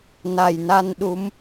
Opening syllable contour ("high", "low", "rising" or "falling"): low